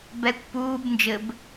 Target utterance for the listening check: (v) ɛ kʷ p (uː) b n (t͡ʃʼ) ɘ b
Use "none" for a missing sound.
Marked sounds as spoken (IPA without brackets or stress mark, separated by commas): b, uː, d͡ʒ